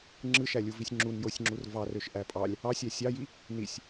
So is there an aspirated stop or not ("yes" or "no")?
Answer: no